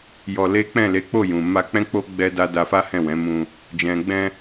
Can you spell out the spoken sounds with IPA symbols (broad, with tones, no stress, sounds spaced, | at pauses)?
j ɔ˧ l e˦ k͡p ɛ̃˦˨ l e˨˦ k͡p o˦˨ j ũ˨ m a˧ k͡p ɛ̃˦ k͡p o˦ ɡ͡b ɛ˦ d a˦ d a˧ f a˦ h ɛ̃˦˨ w ɛ̃˨˦ m ũ˧ | d͡ʒ ɛ̃˨ ɡ͡b ɛ̃˧